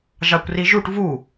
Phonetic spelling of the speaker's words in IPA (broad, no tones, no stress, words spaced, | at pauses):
ʒɑkʷriʒuʈ vu